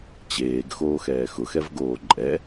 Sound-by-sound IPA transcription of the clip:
t͡ɕeːɡ xoːxɛːxʊxɛv ɡoːǃʼɛ

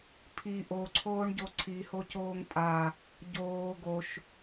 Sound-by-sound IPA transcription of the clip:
pʰi ʔoǀʰoːɳɟo ǀʰihocoːŋ tʼa | ɟoː ɡoʃ

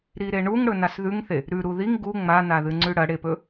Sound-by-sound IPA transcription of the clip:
ɾiɾeɳuŋɽɵ nasðʉŋθe | ɾʉ ɾuðiŋ ɡu ŋ͡manaðɨ ŋ͡ǀʉɽɐɽepɵ

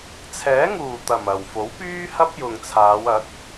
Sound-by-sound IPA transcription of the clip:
t͡sʰɛː˨˥ŋuː˨˩t̪ɐ˨˩m ɐ˨˩w fo˨˥wpyː˥hɐ˥p̚ jʊ˨ŋt͡sʰaː˨˧wɐ˨˥k̚

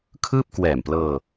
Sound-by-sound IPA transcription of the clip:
kʰɯː˥˩p̚ kwɛː˨˩mplɤː˧

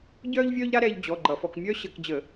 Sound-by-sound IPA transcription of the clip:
ɟœː˥ʎvʲœː˥ʎɾa˥ɾɛː˧ʎ d͡ʑɔ˩˧˩ ɡ͡ǃʌ˧˩˧fɔ˧˩˧k mʲœː˥ɕə˧˩˧kd͡ʑə˧˩˧

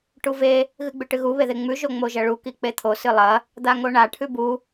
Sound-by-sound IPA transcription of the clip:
ʈuve | ɣɨɡ͡bʉʈɨɣu βeðeŋ͡mʉ ʒoŋ͡moʒɐɭu kik͡pet̪ʰo sɨlˠɐ | d̪aŋoɳa ʈʰʉbu

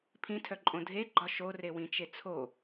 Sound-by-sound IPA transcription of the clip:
pʰĩtʰœǃʼõ dʱeɡ͡ǃɒ ʃorewĩt͡ʃe t͡sʰo

